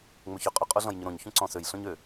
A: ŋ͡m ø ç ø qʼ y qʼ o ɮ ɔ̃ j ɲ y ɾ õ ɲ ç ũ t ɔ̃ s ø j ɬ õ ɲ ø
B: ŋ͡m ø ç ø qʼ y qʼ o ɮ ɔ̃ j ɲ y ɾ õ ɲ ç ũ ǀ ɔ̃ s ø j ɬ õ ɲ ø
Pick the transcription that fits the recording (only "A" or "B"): B